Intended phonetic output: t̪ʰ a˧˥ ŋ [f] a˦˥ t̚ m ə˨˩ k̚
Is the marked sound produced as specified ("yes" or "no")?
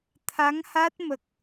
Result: no